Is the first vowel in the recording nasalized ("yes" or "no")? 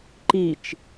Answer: no